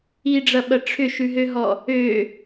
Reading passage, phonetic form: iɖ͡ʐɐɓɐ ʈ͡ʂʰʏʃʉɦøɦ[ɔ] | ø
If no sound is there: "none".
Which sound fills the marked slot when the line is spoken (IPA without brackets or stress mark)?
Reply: ɔ